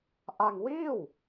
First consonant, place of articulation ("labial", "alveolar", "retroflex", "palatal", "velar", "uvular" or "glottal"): glottal